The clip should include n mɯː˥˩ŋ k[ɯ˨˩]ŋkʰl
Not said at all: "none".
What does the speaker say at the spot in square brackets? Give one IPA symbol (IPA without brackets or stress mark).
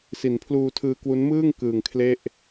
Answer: ɯː˨˩